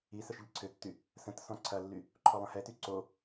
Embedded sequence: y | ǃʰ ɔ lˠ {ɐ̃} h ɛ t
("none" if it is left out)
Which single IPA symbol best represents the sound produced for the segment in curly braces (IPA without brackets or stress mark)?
ɐ̃